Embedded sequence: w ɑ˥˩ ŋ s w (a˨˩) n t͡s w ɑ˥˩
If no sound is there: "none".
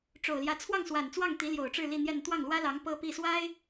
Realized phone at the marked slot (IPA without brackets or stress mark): a˨˩